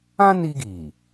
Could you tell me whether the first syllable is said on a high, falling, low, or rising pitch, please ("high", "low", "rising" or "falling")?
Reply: high